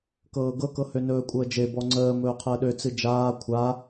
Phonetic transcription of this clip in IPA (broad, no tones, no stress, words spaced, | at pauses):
kɤːɡɤkɤ hønɵːkʷʼəːd͡ʒe bɔŋ͡ǀəː mɵːqʰəːɗø t͡sɨd͡ʒaː kʷʰa